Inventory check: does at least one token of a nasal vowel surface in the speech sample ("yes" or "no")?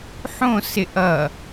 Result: yes